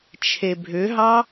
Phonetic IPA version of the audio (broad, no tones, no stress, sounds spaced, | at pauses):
t͡ʃʰ e bʱ ʏ ɦ ɑ